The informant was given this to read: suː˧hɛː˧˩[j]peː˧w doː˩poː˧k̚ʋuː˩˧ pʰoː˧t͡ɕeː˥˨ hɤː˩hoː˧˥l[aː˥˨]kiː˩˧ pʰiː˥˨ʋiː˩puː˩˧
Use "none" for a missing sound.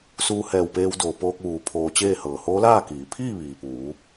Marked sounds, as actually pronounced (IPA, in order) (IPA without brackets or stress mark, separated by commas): w, aː˥˨